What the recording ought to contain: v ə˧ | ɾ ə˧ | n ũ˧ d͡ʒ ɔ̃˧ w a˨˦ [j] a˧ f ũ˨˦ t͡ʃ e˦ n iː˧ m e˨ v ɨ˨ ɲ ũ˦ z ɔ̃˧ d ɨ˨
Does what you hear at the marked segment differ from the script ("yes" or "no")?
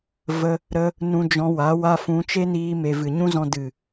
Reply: yes